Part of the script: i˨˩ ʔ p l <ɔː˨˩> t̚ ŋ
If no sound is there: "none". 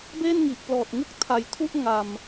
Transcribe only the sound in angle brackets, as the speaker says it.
ɔː˨˩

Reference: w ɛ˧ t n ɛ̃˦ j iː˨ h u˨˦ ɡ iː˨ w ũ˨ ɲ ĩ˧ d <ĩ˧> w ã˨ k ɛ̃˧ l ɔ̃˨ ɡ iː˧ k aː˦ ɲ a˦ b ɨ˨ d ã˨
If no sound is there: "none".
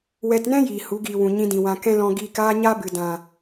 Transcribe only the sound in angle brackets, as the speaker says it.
ĩ˨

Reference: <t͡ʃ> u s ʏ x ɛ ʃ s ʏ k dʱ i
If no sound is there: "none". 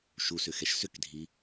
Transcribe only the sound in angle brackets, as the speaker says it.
ʃ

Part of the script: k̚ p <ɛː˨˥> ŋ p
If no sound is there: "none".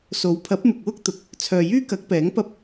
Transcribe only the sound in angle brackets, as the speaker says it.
ɛː˨˥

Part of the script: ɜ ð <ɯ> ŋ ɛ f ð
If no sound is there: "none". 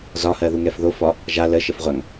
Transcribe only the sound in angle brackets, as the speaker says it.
u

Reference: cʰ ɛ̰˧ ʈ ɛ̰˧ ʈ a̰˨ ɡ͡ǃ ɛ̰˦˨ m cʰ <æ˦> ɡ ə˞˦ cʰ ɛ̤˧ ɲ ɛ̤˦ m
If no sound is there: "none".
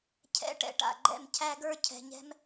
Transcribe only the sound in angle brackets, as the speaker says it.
æ˦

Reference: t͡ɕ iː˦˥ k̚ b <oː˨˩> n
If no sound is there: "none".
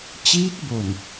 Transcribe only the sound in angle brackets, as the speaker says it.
o˨˩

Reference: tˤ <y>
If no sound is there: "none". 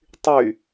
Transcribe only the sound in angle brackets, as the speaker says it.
y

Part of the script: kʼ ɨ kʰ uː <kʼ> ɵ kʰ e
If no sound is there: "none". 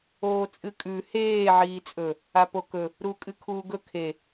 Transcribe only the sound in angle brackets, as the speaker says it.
ɡ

